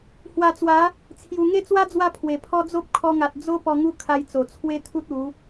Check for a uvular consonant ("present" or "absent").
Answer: absent